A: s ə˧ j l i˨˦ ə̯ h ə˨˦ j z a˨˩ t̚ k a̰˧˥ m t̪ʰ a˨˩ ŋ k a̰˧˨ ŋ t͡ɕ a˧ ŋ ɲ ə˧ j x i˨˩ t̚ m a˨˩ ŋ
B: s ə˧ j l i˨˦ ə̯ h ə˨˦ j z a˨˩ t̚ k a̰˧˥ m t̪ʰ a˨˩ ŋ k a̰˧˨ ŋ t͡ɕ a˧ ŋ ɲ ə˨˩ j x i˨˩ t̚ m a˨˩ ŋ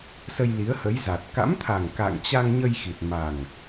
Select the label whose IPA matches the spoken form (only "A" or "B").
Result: A